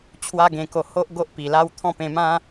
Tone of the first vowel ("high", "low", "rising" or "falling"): high